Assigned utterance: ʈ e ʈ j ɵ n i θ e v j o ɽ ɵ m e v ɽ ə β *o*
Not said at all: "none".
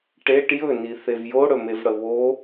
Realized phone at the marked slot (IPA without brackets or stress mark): o